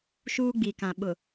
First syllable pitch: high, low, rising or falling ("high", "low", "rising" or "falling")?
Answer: high